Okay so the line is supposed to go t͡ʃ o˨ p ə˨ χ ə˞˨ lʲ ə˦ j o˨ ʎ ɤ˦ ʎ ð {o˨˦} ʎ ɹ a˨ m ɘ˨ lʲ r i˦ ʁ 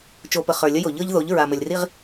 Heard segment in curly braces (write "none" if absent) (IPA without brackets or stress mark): o˨˦